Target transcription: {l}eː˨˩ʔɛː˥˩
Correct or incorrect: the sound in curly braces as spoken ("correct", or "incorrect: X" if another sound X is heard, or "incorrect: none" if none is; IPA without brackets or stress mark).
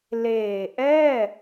correct